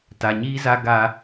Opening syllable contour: low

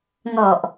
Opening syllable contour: low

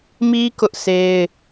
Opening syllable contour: high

